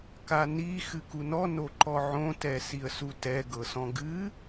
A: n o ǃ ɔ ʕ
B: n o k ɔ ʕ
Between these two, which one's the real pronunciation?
A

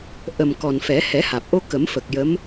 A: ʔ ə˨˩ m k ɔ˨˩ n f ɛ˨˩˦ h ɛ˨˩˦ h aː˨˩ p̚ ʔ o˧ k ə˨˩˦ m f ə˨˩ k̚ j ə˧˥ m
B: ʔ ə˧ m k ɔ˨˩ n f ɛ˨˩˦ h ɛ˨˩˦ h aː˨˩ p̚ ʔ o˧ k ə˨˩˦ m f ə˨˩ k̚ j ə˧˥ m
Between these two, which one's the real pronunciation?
A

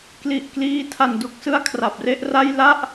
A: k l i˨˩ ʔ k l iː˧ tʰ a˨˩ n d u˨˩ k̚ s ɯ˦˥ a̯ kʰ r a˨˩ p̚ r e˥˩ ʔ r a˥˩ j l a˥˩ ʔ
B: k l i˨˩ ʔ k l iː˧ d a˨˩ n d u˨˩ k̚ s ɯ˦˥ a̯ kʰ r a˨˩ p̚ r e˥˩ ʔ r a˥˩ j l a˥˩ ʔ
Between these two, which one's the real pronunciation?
A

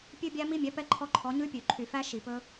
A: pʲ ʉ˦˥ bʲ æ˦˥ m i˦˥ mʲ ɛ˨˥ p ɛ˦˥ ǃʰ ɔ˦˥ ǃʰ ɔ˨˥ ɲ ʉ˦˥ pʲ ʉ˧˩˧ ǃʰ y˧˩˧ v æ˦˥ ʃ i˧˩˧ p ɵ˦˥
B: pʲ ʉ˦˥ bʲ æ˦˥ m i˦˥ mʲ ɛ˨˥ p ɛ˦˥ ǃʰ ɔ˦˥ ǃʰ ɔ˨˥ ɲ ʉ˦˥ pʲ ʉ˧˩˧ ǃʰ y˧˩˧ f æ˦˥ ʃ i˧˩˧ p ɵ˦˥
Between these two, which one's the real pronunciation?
B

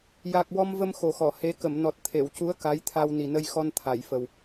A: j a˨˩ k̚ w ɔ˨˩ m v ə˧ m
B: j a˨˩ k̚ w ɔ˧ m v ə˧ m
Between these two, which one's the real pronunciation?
B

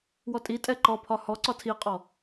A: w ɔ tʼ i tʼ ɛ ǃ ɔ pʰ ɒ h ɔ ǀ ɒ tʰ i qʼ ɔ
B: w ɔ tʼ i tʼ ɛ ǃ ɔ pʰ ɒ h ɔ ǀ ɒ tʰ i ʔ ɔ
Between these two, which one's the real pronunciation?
A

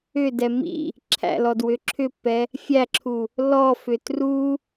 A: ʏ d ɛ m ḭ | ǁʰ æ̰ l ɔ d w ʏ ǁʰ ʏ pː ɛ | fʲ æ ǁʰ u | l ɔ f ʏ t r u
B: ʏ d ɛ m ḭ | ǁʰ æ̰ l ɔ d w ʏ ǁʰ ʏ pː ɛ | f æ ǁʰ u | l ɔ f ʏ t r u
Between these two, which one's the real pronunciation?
A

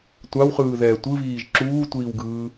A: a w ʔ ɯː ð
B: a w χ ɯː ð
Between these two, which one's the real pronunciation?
B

